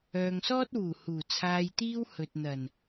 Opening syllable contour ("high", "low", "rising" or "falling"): low